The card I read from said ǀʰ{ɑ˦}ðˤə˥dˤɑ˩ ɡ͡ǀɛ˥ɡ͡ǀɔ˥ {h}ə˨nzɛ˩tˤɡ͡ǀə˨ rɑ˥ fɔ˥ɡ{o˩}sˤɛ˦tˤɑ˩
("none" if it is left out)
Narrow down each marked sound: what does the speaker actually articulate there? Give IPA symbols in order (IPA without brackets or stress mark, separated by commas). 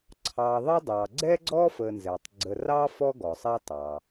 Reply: ɑ˨, f, ɔ˩